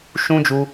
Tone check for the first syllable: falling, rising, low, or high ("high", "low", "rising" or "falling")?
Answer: high